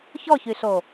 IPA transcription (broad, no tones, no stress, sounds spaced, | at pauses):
ç ɔ ç y ɬ o